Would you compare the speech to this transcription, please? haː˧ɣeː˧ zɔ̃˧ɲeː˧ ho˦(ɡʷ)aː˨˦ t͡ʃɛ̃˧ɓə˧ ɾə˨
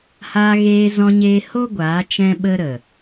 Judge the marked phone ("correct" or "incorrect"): correct